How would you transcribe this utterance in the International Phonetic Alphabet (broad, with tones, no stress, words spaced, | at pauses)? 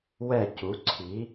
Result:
wɛ˧˩cu˩˧ ǀʰi˩˧